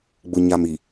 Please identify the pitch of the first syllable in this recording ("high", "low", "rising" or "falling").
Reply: low